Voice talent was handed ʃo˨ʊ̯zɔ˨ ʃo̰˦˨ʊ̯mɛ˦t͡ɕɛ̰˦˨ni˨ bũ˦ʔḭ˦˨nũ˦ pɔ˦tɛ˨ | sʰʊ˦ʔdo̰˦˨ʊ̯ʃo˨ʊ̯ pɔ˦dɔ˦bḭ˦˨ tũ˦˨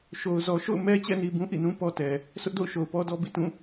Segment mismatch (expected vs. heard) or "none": none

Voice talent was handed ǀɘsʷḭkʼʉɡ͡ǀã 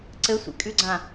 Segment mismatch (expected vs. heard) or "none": none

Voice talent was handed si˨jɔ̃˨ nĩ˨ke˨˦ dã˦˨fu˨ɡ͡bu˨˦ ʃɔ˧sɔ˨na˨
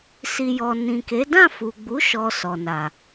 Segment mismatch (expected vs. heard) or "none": ɔ̃˨ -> ɔ˨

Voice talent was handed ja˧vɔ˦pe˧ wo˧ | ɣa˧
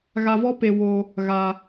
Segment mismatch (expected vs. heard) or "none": j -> ɣ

